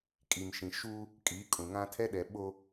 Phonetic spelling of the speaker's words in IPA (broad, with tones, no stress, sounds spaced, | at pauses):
kʼ i˨ m ʃ ĩ˨ ʃ u˦ | kʼ iː˨˦ kʼ ũ˨ ŋ ã˦ tʰ ɛ˦ ɗ ɛ˨ ɓ o˦